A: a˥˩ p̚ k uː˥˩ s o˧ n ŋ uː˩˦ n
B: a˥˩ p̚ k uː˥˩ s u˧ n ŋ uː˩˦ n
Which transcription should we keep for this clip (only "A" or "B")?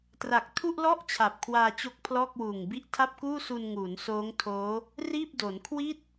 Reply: B